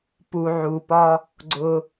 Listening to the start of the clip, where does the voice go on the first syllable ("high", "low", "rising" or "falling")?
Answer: low